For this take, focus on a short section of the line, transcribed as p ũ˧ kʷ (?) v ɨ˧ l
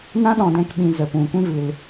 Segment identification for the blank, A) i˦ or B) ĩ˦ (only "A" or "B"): B